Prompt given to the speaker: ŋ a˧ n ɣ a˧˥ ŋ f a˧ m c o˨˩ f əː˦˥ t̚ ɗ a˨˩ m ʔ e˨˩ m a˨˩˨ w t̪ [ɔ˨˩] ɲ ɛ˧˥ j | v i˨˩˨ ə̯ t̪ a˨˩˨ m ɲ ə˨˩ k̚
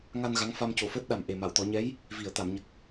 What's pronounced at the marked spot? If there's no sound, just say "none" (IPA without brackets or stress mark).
ɔ˨˩˦